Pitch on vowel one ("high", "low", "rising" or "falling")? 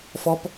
high